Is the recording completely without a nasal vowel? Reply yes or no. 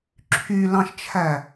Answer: no